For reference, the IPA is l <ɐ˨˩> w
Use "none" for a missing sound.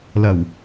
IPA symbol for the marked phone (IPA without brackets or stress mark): ɐ˨˩